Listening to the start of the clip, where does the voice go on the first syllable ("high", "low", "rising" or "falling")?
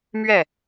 falling